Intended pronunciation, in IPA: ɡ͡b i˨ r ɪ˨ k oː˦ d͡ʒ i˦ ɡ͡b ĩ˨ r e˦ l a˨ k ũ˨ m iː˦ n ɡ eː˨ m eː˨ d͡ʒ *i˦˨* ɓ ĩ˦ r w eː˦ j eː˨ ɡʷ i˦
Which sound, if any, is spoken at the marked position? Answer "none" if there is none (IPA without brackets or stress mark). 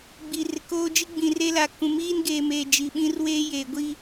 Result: i˨